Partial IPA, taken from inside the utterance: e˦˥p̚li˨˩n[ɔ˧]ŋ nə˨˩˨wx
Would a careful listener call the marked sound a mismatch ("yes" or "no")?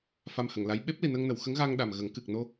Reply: yes